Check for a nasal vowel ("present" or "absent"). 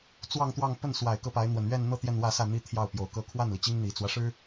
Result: absent